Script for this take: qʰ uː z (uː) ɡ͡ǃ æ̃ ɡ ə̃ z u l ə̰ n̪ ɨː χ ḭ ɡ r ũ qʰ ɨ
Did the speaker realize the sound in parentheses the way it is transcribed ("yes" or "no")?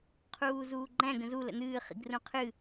yes